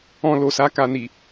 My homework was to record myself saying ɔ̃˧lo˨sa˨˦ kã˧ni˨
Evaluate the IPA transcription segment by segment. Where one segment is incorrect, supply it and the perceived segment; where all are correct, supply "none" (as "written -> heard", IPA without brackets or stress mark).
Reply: ã˧ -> a˧